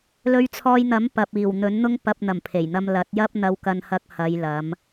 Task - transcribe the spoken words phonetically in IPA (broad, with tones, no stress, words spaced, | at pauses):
lɵ˧ɥt͡sʰɔː˧jn̪ɐ˨˥m pɐ˨p̚iː˨˩wn̪ɵ˨˥n n̪ʊ˧ŋpɐ˨p̚n̪ɐ˨˩m pʰe˨˩jn̪ɐ˧mlɐ˨˥t̚jɐ˥p̚ n̪ɐ˧wkɐ˧nhɐ˧k̚ hɐ˨˧jlɐ˨˧m